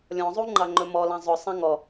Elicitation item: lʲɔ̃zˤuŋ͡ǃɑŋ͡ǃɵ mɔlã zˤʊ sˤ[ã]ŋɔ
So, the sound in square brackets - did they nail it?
yes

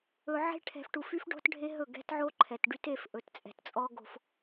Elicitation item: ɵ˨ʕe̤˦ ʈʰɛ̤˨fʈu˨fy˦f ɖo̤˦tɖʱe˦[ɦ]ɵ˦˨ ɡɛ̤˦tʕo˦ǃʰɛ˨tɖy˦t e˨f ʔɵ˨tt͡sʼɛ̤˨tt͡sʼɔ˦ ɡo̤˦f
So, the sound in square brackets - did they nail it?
yes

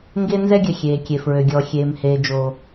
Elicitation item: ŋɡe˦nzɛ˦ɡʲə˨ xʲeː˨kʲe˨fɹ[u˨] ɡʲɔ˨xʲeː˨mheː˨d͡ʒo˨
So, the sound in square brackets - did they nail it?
no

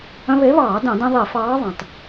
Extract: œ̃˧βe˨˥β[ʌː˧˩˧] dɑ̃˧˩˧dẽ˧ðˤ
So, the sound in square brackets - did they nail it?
no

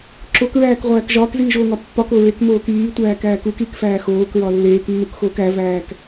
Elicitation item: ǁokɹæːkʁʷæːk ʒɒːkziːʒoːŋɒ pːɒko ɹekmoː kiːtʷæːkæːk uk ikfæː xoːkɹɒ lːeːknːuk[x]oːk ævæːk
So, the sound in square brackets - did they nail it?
yes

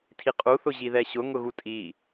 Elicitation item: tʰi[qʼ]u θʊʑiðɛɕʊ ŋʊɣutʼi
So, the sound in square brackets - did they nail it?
yes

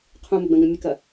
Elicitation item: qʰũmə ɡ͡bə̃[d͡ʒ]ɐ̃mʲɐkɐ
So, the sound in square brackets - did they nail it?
no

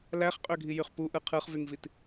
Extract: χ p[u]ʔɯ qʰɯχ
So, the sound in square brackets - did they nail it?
yes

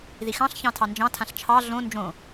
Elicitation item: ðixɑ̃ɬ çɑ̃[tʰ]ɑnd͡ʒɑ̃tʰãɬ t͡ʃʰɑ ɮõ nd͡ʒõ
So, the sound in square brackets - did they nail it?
yes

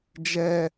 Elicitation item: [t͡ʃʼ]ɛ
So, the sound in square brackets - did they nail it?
no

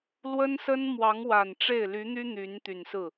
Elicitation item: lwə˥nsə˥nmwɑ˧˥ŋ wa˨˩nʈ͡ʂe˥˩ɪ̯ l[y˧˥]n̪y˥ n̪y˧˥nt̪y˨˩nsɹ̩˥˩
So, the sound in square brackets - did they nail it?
yes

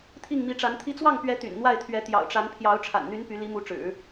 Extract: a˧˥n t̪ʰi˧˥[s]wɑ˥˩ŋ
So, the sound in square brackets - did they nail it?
no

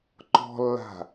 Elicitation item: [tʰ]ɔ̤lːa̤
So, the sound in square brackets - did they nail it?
no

